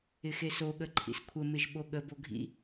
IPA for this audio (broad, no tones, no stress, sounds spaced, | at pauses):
ɪ x e s o ɠ ə ǃʰ ḭ s kʷʰ ə m ɪ ʒ ɓ o ɠ ə b o ɡʱ ḭ